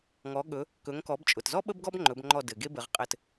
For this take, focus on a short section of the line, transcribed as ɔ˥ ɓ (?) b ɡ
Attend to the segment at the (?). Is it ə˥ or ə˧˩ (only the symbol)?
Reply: ə˥